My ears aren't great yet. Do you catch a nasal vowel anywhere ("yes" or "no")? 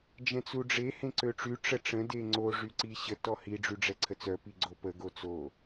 yes